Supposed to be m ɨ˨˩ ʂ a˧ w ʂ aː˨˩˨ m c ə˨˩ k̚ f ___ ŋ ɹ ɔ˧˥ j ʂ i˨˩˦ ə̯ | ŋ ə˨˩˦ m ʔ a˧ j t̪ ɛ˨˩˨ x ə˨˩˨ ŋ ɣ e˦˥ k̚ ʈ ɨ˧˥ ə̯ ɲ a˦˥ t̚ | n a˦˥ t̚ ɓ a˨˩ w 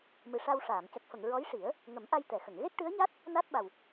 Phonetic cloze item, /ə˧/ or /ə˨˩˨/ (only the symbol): ə˨˩˨